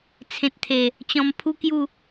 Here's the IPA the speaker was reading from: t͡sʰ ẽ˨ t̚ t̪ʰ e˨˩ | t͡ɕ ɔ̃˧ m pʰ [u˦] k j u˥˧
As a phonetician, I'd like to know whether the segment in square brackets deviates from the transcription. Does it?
no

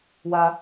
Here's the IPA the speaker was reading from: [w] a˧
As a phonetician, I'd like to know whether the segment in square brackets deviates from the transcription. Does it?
no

